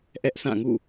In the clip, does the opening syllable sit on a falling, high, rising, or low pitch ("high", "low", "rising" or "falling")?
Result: high